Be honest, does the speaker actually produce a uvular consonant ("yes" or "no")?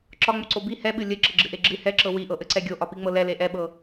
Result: no